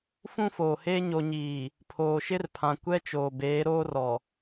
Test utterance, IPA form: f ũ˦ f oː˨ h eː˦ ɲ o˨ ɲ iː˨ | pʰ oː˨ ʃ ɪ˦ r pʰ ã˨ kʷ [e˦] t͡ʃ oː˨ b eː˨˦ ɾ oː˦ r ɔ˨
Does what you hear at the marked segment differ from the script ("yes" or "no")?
yes